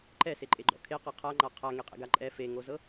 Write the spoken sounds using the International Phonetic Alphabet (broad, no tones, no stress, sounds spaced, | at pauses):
ǃ ɛ s e ǃʼ e ɡ͡ǃ ɔ̰ kʰ e q e qʰ a ŋ͡ǃ a qʰ a ŋ e qʼ ḛ ɡ a ǃʼ ɛ f e ŋ o z ɤ